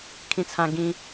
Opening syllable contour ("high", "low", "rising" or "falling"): high